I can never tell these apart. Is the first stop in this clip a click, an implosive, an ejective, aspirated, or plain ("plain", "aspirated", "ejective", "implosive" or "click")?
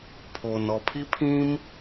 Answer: aspirated